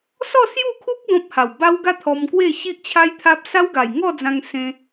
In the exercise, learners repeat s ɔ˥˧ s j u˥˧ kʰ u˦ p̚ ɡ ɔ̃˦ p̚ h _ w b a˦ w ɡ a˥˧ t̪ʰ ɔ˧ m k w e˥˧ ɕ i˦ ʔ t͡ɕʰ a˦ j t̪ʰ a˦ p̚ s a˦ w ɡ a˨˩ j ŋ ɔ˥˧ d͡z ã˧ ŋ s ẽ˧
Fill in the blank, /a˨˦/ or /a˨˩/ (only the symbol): a˨˩